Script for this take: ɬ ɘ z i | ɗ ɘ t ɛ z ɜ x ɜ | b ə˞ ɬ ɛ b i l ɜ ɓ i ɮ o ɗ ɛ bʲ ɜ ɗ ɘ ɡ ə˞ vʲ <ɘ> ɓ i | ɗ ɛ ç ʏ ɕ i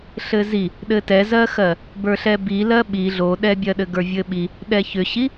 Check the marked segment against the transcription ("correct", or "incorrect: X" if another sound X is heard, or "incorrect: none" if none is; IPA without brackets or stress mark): correct